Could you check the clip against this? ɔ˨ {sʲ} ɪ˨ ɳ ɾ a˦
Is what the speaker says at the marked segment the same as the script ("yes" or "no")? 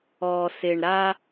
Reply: no